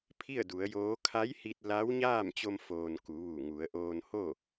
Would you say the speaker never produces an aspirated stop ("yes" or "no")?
no